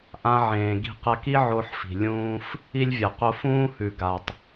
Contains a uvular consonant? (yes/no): yes